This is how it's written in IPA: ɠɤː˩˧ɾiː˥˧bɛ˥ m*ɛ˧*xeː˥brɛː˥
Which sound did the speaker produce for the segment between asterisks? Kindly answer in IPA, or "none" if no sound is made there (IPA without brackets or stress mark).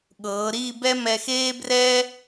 ɛ˧